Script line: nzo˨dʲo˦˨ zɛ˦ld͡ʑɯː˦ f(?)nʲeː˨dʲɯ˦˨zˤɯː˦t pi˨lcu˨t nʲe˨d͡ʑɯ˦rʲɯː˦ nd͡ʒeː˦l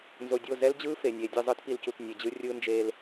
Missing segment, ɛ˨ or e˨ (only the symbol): e˨